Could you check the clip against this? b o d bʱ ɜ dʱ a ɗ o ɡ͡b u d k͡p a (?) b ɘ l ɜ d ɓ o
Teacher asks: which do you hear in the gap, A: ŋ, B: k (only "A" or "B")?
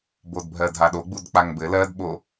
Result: A